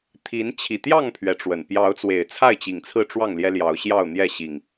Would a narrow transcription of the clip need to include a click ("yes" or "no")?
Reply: no